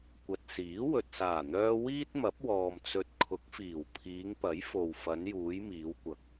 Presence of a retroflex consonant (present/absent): absent